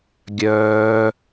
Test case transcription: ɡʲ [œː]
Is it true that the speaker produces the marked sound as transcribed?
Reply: yes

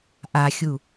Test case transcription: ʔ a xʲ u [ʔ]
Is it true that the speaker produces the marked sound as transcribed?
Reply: no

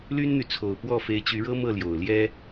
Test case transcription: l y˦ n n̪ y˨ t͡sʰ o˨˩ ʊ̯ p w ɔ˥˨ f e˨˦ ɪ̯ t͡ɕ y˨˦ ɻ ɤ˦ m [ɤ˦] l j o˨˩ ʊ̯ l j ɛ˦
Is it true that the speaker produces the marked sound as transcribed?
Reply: no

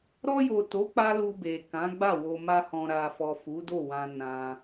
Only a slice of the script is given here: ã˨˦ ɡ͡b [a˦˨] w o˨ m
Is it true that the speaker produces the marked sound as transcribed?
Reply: yes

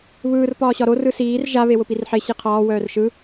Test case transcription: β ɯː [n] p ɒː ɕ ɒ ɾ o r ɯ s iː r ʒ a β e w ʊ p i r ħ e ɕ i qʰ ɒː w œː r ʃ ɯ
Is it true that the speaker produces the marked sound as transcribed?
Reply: no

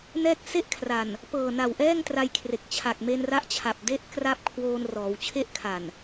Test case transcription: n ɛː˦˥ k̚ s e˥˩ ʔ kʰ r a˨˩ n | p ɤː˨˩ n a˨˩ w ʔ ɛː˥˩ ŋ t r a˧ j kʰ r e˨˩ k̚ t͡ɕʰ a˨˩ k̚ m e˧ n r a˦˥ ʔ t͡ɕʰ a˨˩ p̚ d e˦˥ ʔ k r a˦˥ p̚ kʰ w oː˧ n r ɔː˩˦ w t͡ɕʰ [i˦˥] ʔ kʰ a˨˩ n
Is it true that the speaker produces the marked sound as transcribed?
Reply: no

